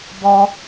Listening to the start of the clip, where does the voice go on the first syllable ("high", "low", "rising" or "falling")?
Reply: low